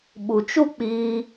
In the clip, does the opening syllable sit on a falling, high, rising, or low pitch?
low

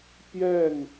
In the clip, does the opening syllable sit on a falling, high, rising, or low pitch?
falling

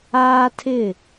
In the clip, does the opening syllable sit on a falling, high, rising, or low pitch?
high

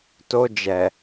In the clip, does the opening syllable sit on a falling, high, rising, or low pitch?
high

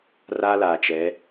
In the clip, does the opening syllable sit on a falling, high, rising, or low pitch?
high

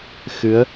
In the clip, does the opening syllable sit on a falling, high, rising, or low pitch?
rising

